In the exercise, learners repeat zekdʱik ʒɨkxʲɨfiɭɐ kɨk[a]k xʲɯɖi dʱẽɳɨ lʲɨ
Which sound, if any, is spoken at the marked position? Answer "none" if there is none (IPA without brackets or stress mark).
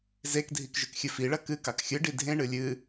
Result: ɑ